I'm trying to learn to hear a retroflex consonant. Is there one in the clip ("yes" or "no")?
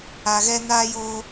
no